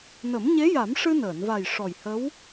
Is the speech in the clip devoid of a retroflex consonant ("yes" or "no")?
no